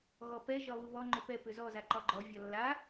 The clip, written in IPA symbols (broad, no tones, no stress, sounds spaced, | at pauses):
ɣ ɔ p ɛ ʒ ɒ β u β ɔ ŋ͡ǃ ʏ p ɛ p ʏ z ɔ z a ǃ ɒ ɡ͡ǃ ɔ vʲ ɒ lː a